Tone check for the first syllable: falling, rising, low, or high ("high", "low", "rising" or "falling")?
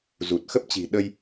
low